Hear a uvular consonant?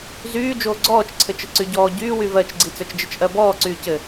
no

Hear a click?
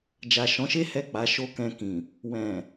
no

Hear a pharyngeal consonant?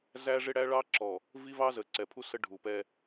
no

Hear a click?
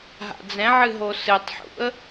no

